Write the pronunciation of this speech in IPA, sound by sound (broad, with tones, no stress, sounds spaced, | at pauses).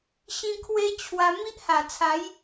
ɕ ĩ˦ kʰ w e˦ t͡ɕʰ w a˧ m i˦ ʔ h a˨˩ t͡sʰ a˨˦ j